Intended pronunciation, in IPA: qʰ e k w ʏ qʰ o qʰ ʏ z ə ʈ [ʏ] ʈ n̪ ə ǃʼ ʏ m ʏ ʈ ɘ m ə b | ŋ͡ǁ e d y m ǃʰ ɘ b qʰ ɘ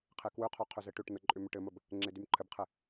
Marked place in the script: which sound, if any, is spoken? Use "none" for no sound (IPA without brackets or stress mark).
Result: ʏ